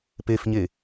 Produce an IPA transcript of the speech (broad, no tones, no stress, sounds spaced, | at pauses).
p e f ɲ e